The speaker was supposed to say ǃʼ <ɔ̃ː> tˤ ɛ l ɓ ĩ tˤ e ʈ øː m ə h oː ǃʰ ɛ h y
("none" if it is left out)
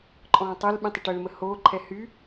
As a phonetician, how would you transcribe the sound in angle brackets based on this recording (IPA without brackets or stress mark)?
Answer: ɔ̃ː